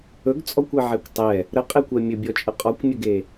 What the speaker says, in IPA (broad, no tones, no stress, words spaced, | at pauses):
ɵɡt͡sʼɔkʷeʕɛkʷ tˤɛ | ɾəqʼekʷɛ mʲɵbʲɔt͡ʃʼə qʼɔkʷmʲəɡe